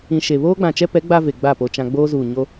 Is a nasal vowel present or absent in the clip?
present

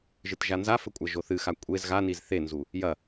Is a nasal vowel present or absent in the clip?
absent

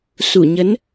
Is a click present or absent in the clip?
absent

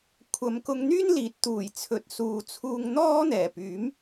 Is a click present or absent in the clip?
absent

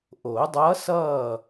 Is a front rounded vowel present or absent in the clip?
absent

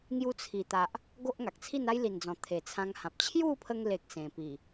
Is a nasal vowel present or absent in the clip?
present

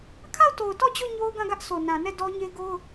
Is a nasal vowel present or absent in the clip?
present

